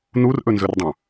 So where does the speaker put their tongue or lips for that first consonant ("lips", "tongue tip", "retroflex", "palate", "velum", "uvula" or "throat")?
tongue tip